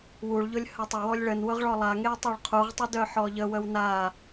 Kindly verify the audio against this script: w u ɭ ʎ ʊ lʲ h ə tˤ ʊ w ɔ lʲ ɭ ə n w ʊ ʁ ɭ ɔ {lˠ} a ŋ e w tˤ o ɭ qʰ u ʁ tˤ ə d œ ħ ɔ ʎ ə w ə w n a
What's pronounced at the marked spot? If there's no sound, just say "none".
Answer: lˠ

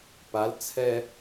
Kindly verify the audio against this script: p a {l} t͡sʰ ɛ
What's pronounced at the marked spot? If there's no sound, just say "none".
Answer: l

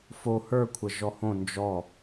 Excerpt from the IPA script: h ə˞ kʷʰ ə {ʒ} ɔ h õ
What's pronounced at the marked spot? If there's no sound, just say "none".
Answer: ʒ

